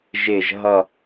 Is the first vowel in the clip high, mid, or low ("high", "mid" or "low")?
high